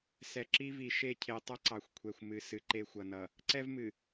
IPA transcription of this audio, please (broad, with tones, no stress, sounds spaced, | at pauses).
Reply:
s ɛ˨ ǁ i˦ v i˨ ʃ e˦˨ cʰ e˨ tˤ ʌ˦ ǀ ɑ˨ xʷ kʷʰ ɛ˨ xʷ m ɨ˨ s ɨ˨ ǃ e˦ xʷ ʌ˨ n ʌ˨ | ǀ ɛ˦ v m ɨ˨